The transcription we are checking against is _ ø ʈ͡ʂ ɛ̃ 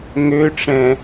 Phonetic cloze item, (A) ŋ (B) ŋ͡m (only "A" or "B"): A